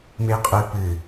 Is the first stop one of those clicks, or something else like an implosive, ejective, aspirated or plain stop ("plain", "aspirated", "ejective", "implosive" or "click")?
ejective